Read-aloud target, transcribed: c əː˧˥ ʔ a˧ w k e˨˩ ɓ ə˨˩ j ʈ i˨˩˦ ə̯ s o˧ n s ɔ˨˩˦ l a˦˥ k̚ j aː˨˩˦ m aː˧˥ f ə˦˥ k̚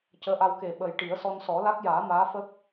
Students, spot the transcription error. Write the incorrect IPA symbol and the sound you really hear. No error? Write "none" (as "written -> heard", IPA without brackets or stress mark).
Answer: o˧ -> ɔ˧